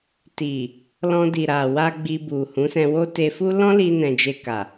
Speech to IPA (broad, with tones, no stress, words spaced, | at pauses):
ti˨ | lɔ̃˧di˨ɾa˨wa˧ ɡ͡bi˧bu˨ hũ˨˦sɛ̃˧wo˦ te˧fu˦ lɔ̃˦li˧nɛ̃˨ d͡ʒe˧ka˨